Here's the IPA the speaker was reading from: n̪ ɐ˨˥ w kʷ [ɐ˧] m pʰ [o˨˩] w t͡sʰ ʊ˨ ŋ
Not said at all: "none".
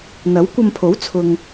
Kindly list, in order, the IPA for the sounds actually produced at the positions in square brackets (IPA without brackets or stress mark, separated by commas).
ɐ˧, o˨˥